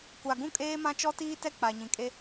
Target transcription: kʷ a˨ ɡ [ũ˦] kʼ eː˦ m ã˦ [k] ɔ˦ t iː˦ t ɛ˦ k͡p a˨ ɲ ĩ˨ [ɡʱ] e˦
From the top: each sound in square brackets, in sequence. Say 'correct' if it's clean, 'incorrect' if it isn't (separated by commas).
correct, incorrect, incorrect